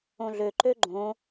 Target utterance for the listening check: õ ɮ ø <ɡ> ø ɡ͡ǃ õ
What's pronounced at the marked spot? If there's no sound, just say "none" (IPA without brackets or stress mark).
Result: ǃ